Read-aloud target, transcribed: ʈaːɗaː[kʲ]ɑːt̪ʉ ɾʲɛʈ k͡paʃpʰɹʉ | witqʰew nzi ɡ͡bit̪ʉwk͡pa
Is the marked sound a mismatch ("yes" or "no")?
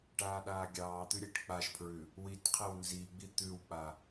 yes